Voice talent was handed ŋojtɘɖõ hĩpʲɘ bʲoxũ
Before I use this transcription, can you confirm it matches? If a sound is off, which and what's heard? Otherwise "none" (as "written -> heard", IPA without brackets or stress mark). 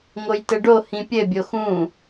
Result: õ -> o